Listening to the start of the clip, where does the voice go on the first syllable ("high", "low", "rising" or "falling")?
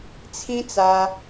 high